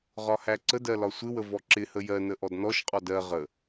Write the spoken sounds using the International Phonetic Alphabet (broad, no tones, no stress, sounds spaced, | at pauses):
ʁ ɒ h æ ǀ ə d ɜ l ɒ sʷ ɪ w ə v ɔ ǁ ɪ h ə j ɜ n ə ʔ ɔ d n ɔ ʃ qʼ ɔ d ɜ ʁ ə